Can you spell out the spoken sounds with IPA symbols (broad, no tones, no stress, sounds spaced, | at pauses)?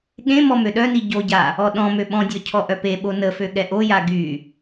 ɠ ẽ m ɔ m ø ɗ œ n i ɟ o ɟ a | ɔ ɗ ɔ̃ m ø ɓ ɔ̃ dʲ ɔ cʰ ɔ ʔ œ p e ɓ o n ə f ø ɠ ɛ ʔ o j a ɡ y